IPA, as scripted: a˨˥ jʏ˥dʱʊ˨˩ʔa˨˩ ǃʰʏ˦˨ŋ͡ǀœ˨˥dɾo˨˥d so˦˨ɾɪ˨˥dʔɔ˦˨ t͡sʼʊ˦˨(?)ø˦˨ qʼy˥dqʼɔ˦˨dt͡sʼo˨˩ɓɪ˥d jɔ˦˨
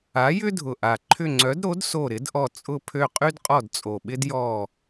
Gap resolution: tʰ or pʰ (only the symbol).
pʰ